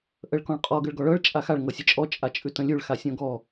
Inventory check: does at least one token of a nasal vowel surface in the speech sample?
yes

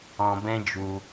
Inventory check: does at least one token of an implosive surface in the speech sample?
no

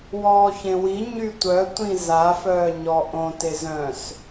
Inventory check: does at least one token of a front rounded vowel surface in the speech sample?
yes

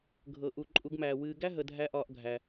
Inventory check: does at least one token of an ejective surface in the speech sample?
yes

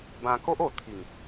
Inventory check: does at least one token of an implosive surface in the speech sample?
no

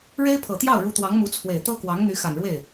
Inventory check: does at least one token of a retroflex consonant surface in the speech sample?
yes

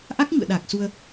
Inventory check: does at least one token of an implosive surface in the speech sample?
yes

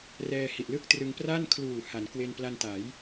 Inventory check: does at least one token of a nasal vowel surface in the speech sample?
no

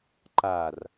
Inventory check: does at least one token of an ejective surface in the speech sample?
no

